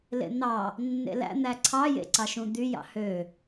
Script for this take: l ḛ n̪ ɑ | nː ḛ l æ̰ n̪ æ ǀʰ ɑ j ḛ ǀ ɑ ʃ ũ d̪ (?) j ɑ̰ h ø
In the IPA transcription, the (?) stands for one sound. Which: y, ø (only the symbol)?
y